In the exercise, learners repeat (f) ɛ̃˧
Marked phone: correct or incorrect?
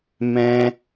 incorrect